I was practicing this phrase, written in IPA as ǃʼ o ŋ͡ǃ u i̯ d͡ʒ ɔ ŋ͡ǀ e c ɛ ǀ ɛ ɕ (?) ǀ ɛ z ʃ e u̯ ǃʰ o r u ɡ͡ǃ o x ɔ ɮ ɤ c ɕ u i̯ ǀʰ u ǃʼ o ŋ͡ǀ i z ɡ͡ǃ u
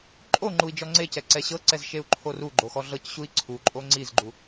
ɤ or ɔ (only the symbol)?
ɤ